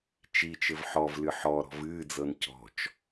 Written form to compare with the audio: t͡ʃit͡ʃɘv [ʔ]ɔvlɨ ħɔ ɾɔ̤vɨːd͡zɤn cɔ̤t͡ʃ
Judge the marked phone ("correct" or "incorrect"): incorrect